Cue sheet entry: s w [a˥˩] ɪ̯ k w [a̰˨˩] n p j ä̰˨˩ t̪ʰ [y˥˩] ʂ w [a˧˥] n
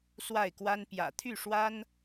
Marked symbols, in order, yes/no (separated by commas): yes, no, yes, no